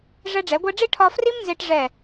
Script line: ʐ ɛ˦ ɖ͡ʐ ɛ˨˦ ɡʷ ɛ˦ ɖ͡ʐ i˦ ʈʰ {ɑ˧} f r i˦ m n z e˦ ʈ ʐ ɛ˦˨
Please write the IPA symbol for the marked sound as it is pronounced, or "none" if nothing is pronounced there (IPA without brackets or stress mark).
ɒ˧